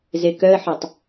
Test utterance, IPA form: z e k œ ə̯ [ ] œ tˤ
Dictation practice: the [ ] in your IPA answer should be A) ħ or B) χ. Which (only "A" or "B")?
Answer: A